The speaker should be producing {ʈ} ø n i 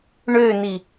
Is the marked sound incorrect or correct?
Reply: incorrect: ɳ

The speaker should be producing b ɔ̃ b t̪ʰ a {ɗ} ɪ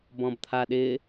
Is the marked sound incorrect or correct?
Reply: correct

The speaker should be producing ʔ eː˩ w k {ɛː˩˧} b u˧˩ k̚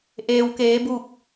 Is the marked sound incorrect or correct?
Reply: incorrect: eː˩˧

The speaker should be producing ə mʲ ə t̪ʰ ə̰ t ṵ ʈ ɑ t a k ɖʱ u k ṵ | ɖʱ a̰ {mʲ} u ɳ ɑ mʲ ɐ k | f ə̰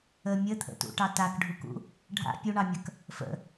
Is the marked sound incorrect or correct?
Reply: incorrect: pʲ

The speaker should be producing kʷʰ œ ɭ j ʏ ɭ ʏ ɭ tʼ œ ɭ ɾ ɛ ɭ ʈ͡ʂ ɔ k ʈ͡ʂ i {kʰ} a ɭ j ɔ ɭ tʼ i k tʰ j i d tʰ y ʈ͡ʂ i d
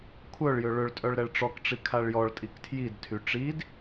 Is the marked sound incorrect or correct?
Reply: correct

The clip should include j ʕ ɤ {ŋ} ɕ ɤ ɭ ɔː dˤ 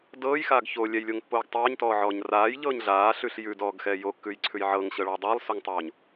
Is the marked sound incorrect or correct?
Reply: correct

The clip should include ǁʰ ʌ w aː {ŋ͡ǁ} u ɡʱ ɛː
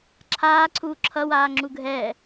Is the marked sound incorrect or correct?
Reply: correct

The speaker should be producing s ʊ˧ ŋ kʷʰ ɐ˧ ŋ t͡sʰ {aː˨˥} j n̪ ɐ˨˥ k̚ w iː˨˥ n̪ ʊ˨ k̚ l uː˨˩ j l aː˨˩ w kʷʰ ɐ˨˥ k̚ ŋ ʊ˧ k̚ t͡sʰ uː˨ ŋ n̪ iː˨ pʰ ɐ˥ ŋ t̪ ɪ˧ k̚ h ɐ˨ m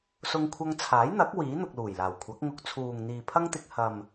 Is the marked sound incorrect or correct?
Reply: correct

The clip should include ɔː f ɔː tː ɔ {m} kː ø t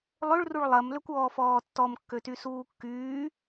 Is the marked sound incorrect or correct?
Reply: correct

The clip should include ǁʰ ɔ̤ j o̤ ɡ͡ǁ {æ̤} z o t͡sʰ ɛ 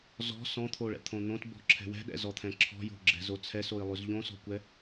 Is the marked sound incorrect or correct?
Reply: incorrect: ɛ̤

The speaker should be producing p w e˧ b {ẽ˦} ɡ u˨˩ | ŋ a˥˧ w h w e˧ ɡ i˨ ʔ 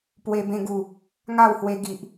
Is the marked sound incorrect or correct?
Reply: incorrect: ẽ˧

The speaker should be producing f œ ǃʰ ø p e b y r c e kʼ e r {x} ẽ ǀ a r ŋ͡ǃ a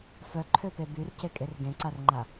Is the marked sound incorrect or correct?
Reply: incorrect: ɡ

